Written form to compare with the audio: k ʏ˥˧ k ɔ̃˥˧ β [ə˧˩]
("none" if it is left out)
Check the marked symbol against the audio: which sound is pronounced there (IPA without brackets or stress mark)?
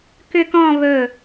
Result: ɵ˧˩